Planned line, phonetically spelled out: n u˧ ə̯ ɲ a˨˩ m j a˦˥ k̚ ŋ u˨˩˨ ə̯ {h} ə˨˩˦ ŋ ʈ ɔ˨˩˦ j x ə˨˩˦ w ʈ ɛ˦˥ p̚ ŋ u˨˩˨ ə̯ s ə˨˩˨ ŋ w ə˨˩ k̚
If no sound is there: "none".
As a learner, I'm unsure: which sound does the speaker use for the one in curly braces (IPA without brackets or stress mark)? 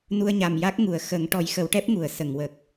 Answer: x